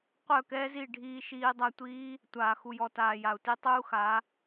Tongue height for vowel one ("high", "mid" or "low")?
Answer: mid